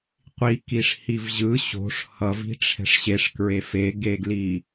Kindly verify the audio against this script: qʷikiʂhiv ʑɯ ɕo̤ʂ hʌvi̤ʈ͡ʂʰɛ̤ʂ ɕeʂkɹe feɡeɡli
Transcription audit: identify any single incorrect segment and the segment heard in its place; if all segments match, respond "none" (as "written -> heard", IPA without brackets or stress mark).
none